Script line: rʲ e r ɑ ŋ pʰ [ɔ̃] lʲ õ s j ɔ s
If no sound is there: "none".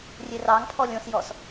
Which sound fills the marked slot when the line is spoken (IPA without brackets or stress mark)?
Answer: ɔ